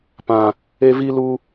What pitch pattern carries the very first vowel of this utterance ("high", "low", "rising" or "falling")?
low